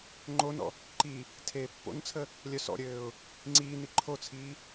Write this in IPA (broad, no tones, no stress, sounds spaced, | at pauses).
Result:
ŋ͡ǃ o n ɔ̰ | ǃ i | tʰ eː pː o̰ n t͡sʰ ə | lʲ œ s ɔ̰ ɾʲ ɘː ʊ̯ | ŋ͡ǀ iː n i ǃʰ o t͡sʰ iː